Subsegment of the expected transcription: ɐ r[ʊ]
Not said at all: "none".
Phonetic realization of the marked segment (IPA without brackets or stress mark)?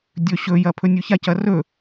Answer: ɵ